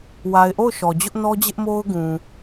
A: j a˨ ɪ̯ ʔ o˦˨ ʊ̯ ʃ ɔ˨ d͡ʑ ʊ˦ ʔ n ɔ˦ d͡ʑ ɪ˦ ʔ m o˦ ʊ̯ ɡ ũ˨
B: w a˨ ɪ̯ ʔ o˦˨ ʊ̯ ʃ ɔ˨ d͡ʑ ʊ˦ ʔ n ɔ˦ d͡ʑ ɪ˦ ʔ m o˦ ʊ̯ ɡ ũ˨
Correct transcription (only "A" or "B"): B